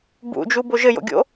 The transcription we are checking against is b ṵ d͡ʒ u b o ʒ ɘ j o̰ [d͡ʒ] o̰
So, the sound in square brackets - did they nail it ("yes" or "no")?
no